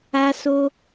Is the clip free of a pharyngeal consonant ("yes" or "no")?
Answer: yes